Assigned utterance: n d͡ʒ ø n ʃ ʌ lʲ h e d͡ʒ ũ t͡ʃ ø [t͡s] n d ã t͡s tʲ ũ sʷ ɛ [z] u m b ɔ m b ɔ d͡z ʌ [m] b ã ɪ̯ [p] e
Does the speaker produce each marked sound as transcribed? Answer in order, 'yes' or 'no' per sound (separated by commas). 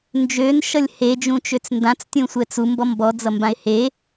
yes, no, yes, no